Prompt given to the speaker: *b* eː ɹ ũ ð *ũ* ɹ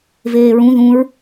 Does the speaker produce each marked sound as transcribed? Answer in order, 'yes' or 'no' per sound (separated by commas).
no, yes